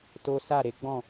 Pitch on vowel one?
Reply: high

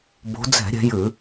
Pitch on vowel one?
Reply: rising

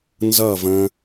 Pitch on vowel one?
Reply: falling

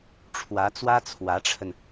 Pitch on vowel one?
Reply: rising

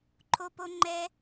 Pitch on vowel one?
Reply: high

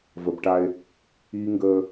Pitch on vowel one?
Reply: low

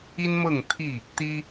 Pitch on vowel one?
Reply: high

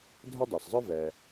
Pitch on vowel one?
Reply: high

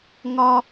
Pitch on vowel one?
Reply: high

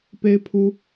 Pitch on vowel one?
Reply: high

